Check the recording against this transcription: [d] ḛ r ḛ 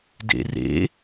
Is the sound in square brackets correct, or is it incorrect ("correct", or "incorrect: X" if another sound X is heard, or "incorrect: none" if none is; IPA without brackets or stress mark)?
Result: correct